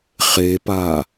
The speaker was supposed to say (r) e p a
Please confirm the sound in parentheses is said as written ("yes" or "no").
no